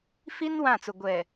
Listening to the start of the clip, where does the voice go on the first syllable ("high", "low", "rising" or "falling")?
high